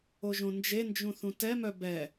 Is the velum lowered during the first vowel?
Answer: no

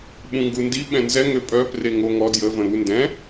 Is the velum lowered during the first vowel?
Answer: yes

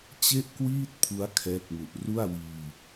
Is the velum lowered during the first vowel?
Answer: no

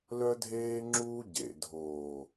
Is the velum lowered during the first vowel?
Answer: no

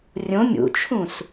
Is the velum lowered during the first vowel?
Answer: yes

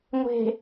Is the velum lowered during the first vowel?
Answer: no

